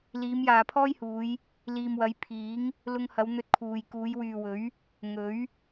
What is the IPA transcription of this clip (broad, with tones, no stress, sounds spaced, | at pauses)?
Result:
l iː˨˧ m j aː˨ pʰ ɔː˥ j h uː˨˧ j | l iː˨ m w ɐ˨˧ j pʰ iː˨˥ ŋ | l ʊ˧ ŋ h ɐ˨˧ w n̪ ɵ˧ t̚ kʰ uː˨ j k uː˨˧ j w yː˨ w ɵ˨˥ ɥ | ŋ ɵ˨˥ ɥ